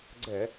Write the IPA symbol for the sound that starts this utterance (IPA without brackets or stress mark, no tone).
ɡ͡ǀ